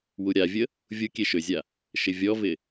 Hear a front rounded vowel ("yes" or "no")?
yes